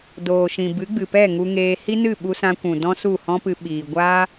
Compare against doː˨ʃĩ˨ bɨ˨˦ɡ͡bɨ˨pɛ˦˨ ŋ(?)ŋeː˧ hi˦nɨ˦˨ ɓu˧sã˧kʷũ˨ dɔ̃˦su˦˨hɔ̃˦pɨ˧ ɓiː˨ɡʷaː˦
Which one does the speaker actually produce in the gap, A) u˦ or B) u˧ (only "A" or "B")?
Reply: B